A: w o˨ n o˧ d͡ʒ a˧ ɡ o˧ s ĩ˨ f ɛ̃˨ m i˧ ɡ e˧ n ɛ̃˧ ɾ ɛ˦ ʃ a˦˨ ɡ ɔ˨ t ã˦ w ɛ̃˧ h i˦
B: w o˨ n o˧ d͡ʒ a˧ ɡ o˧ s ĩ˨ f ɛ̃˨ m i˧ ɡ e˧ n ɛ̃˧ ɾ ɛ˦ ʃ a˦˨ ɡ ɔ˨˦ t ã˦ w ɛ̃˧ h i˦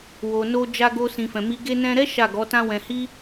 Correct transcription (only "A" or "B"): B